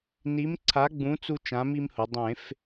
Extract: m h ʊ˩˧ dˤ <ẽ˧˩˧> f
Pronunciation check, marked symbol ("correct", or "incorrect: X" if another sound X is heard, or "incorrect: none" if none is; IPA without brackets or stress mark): correct